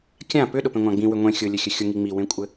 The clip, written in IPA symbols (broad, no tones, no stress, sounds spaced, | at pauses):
kʲ ã p ʏ ɗ ʊ p ẽ ŋʷ ã ɡ͡b ĩ w ʏ ŋʷ ẽ xʲ ʊ lʲ ɘ xʲ ɘ xʲ ʊ ŋ i ŋ͡m i w ẽ kʷʼ ɘ